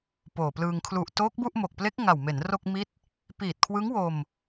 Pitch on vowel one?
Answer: low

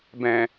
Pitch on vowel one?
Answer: low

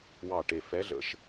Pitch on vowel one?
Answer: low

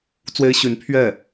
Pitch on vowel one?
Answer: high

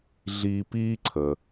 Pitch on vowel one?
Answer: high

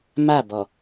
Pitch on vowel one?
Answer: falling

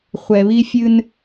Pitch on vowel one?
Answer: low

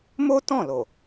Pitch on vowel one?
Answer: high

